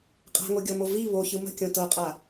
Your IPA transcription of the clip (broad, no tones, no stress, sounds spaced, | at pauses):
qʼ a̤ ŋ o ɡʲ ɔ m o v i β o ç ɯ m ə̤ kʲ õ t ɤ qʼ a